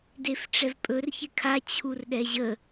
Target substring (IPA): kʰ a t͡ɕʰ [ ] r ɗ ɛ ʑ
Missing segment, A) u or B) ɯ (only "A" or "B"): A